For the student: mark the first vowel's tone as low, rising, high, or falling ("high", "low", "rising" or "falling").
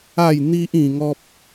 falling